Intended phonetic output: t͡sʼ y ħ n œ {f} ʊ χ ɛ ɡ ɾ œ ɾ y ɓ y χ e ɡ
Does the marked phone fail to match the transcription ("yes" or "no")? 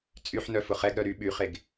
no